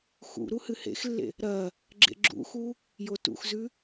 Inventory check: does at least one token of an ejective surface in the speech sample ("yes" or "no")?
no